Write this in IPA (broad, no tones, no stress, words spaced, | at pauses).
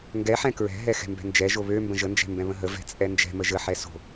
ŋɡɛħɛ̃ kɹɛ̤ ɦɛxɛ̤mbɛ̤nd͡ʒɛ ʒoβømbə̃ ʒənd͡ʒɛ̤ mbɛ̃βə̃ɦə vɛ̤t͡sʼɛnd͡ʒɛ̤ məʒə ħɛso̤